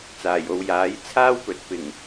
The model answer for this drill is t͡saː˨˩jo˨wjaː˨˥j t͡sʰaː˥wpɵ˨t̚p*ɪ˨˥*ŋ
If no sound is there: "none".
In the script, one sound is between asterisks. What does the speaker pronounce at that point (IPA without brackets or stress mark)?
ɪ˨˩